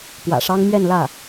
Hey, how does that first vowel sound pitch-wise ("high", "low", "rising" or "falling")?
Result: low